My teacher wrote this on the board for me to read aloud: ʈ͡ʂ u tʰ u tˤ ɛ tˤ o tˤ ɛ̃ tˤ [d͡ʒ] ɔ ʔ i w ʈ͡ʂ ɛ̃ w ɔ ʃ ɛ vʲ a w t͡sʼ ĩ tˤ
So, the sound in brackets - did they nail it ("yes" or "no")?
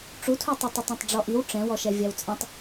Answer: no